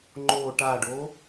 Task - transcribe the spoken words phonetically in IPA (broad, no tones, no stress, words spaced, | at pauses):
ŋ͡ǃo ʈaɖo